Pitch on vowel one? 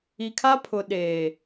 low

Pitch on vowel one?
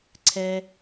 high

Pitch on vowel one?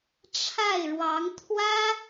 falling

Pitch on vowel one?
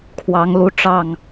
rising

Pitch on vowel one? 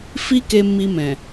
high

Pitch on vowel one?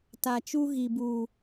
low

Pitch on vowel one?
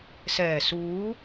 low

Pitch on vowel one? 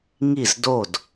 falling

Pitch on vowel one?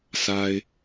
low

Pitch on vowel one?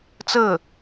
falling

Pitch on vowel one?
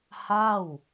falling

